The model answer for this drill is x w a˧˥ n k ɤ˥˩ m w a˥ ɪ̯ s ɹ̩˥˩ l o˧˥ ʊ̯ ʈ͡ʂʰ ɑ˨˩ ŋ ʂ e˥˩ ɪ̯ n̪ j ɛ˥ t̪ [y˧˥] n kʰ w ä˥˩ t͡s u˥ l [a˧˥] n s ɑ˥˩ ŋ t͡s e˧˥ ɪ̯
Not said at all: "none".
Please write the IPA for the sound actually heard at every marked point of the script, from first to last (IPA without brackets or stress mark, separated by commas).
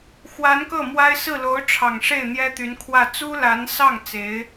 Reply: y˧˥, a˧˥